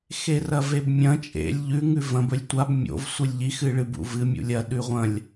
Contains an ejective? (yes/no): yes